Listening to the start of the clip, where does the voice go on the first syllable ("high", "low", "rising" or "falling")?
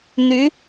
rising